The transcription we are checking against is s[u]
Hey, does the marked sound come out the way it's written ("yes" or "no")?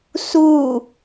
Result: yes